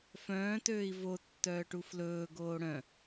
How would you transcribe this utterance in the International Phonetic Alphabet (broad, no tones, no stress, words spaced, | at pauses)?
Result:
fœ̃ːtøːi̯ vo tːœːʈuflɵː ɡoːɽœ̃